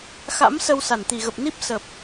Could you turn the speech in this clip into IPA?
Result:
x a̰˧˥ m s ə˧ w s a˧˩ n t̪ i˧˩ ɣ ə˨˩ p̚ n i˦˥ p̚ s ə˨˩ p̚

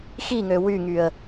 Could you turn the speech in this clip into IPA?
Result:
x i ŋ ø w y ŋ y ə̯

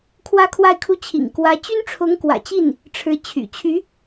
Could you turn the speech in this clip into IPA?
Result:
kʰ w ä˥˧ kʰ w a˥˧ ɪ̯ kʰ u˥˩ t͡ɕʰ ḭ˨˩ ŋ k w ä˧˥ t͡ɕ y˥ n ʈ͡ʂʰ ʊ˧˥ ŋ k w ä̰˨˩ t͡ɕ i˥˩ n | ʈ͡ʂʰ ɻ̩˧˥ t͡ɕʰ y̰˨˩ t͡ɕʰ y˧˥

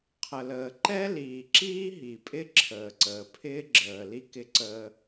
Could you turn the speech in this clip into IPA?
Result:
qʰ ə˨ l əː˨ ǃ ɛ˦ l iː˨ ǁ iː˦ ɦ i˨ pʼ ɪ˦ ǁʰ əː˨ ǀ əː˨ pʰ ɪː˦ ɡ͡ǁ əː˨ l i˦ k ɪ˦ ǀ əː˦

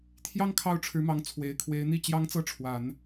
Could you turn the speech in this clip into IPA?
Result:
t̪ʰ j ɑ˥ ŋ kʰ ɑ˥˩ ʊ̯ ʈ͡ʂʰ ɻ̩˧˥ m ɑ˧˥ ŋ t͡sʰ w e˨˩ ɪ̯ kʰ w e˧˥ ɪ̯ n̪ i˥˩ t͡ɕ j ɑ˥ ŋ t͡s ɤ˥˩ ʈ͡ʂʰ w a˨˩˦ n

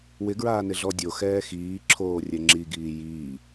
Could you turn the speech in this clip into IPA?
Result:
w ɪ ɡ ɹ aː n ɪ ɮ ɔ dʲ o x ɛː x iː ǁʰ oː rʲ ɛ ŋ͡ǁ i ɡ iː j iː

